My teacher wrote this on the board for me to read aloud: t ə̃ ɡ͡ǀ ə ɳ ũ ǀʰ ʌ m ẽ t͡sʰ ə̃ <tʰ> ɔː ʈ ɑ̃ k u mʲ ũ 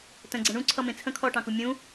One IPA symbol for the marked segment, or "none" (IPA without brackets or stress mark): kʰ